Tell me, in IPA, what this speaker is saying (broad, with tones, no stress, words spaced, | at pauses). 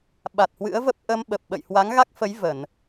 ɓa˨˩t̚hwɨ̰˧˥ə̯və˦˥p̚ ʔə˧mɓə˨˩p̚ ɓə̰˧˨jhwa˨˦ŋɣa˦˥k̚fə˨˦j və˧˩˨n